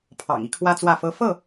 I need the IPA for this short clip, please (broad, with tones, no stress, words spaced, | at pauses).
pʰɑ̰˨˩ŋi˦kʰwä˦ t͡swä˥˨fɤ˦ fɤ˥˨